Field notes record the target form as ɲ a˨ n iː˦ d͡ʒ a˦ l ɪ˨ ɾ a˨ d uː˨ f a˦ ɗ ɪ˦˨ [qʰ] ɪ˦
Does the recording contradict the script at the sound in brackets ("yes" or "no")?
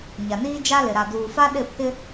yes